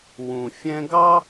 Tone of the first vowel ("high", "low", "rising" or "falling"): low